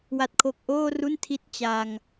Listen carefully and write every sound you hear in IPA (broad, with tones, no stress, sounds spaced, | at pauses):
w a˦˥ t̚ kʰ o˦˥ k̚ ʔ oː˥˩ r u˥˩ n tʰ i˦˥ t̚ t͡ɕ a˧ ŋ